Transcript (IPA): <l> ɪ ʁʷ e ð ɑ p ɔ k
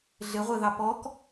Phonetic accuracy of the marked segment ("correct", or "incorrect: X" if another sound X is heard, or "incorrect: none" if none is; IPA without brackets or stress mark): incorrect: ɮ